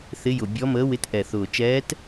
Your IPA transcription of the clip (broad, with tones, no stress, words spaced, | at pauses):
θɪ˧˥jʊ˨˩ bʲɔ˧˥məː˧˥wɪ˧˥t ʔɛ˨˩ θʊː˨˩ t͡ʃɛː˧˥t